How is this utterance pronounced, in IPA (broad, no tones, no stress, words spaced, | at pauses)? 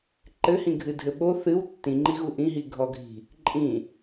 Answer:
ǃɘhĩ ɡʱɨdʱɘɓo θɨw tːĩŋ͡ǃiɣu ʔĩɦiɡʱɔɡʱi̤ | ǃʼĩ